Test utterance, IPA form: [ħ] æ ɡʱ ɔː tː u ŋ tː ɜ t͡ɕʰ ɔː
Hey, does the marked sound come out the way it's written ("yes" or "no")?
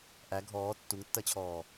no